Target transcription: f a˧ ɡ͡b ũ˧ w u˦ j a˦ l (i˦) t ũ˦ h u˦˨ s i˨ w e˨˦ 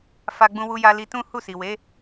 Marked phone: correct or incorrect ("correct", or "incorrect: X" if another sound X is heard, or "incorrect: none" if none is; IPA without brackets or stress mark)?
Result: incorrect: i˧